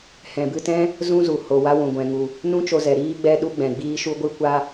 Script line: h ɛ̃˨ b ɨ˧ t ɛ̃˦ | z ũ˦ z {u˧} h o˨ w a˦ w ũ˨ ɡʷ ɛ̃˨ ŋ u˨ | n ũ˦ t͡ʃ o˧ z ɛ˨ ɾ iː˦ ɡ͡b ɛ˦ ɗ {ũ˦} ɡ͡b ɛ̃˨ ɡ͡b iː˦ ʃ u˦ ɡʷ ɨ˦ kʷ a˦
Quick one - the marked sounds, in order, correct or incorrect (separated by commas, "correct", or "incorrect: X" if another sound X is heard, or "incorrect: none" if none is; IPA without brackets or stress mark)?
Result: incorrect: u˨, incorrect: u˦